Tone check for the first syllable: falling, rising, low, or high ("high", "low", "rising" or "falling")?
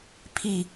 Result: falling